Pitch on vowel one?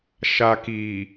low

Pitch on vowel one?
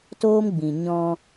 high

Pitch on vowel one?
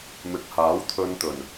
low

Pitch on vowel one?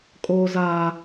high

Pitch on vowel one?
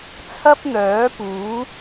high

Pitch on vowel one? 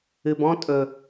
low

